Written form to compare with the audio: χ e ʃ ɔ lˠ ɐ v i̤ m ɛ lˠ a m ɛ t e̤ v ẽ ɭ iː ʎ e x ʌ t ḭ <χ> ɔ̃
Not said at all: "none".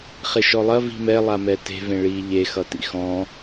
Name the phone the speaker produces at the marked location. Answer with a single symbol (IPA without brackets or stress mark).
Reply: x